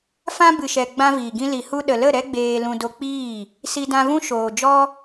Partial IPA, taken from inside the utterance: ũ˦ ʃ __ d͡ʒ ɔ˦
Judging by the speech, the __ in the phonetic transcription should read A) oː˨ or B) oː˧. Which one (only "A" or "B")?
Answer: A